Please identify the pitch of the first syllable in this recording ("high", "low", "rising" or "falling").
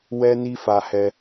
high